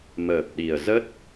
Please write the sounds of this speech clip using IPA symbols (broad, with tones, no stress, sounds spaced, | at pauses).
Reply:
m əː˨˩ p̚ ɗ i˨˩ ə̯ z ə˦˥ t̚